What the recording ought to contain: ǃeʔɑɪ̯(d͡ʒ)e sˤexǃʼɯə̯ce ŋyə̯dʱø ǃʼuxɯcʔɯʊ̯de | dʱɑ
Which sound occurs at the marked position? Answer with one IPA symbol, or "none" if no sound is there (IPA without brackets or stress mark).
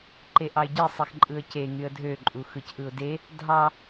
ɟ